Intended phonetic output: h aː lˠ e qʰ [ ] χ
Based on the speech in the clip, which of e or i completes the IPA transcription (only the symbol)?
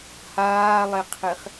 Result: e